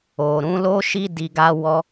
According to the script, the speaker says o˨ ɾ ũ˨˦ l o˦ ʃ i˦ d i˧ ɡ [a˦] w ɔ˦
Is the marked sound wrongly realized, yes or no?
no